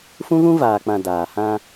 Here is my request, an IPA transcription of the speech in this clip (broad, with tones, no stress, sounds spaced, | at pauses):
f ũ˦ ɣ ũ˦ v aː˨ k͡p ã˨ d aː˨ h ã˦